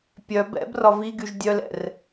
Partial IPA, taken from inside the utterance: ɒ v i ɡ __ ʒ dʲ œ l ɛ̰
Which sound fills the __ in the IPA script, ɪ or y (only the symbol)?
y